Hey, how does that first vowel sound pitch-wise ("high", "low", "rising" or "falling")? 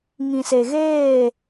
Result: low